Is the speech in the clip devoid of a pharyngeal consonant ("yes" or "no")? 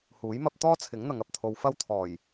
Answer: yes